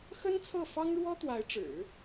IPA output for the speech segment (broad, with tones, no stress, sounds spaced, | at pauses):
x ə˥ n t͡sʰ ɤ˥˩ f ɑ˥ ŋ ɻ w ɔ˥ t̪ w a˧˥ ɪ̯ ʈ͡ʂ ɻ̩˨˩˦